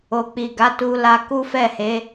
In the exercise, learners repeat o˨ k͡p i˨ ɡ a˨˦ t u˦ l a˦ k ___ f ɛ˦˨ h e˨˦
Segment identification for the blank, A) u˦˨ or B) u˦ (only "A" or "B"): B